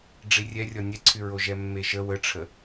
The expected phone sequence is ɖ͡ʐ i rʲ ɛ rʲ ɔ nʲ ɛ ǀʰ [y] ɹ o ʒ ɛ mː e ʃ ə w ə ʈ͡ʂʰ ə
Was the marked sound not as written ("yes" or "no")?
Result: no